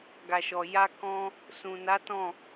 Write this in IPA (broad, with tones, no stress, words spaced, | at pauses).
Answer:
ɡa˨ʃɔ˨ja˧kɔ̃˧ | sũ˨na˨˦ tɔ̃˦˨